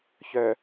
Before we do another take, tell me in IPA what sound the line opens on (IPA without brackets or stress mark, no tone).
ç